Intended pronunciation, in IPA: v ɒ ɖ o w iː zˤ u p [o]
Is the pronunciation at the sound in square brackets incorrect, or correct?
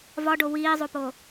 correct